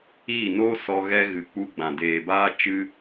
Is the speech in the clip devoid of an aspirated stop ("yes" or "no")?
yes